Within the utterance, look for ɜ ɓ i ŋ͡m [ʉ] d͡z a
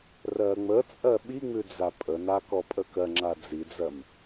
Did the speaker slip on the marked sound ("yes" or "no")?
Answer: no